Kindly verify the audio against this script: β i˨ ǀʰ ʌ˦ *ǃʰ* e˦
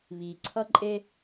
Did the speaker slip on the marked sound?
yes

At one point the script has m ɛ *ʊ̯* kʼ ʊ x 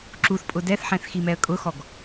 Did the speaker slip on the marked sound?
yes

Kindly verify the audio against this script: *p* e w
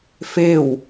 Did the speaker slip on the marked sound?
yes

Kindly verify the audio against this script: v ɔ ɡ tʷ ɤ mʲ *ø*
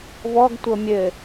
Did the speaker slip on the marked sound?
yes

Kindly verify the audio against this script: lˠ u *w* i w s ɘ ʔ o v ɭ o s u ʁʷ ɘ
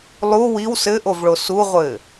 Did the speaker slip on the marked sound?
no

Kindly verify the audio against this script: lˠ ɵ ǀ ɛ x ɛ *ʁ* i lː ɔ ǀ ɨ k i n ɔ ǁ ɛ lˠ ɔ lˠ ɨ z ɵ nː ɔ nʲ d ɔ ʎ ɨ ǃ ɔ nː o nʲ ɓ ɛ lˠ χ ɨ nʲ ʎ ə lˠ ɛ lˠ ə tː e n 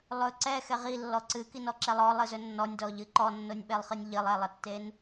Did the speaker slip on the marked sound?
no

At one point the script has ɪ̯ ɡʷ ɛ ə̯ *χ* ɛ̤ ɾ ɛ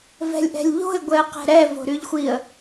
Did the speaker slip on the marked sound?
yes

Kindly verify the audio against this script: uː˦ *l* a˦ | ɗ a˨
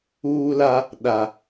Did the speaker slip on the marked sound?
no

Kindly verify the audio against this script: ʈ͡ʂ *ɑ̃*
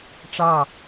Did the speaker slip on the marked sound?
yes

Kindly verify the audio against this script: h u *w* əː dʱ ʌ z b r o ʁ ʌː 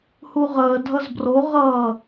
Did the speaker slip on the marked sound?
yes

